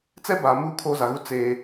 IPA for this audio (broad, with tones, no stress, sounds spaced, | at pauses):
t͡s ɛ˦ b aː˨ m uː˦ kʰ oː˦ z a˨ ɣ u˦ t͡s eː˦